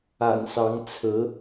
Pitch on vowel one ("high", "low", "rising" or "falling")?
low